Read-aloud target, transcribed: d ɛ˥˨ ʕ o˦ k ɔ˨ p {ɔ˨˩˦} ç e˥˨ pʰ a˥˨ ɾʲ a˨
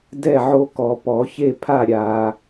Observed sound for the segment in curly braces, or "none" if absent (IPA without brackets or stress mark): ɔ˨˩˦